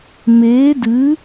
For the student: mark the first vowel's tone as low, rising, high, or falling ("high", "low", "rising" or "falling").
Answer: rising